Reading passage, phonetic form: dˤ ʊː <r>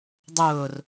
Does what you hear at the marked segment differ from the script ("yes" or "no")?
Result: no